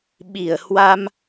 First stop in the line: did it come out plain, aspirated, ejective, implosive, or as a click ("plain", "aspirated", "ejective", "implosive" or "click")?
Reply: implosive